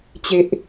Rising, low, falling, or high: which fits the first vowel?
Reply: low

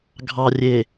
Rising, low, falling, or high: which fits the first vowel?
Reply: low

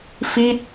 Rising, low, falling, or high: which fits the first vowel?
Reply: falling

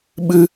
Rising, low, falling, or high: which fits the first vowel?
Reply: high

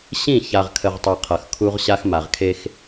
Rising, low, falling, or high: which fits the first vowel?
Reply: falling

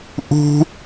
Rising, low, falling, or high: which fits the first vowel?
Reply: high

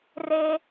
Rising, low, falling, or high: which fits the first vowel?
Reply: low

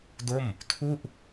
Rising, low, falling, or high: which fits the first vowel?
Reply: falling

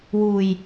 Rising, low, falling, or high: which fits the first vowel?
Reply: low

